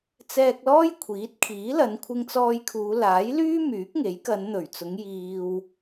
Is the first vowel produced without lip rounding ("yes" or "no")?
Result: yes